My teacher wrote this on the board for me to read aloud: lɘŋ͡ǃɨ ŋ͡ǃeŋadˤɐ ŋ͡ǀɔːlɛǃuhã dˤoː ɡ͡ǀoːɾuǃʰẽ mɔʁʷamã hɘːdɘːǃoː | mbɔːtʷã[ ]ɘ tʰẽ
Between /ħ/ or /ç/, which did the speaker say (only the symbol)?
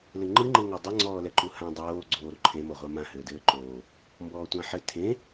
ħ